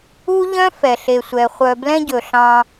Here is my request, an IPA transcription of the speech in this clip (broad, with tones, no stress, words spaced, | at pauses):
u˦ʎœ̃˦ fɛ˨ɬe˨sʷɛ˨ χʷœ˨blɛ̃˦ɟɵ˨ ɬɑ̃˦